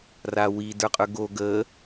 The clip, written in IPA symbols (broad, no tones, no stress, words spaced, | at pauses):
rawid ə˞qʼə˞ɡo ɡə